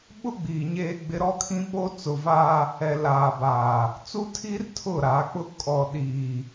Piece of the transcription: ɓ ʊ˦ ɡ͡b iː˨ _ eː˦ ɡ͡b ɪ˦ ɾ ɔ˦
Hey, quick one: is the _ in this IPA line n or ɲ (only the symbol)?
ɲ